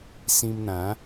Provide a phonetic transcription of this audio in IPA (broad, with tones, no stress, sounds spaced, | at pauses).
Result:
s ĩ˧ m n̪ ã˨˦